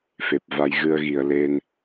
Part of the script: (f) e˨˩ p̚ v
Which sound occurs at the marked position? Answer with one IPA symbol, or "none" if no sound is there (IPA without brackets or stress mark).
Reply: f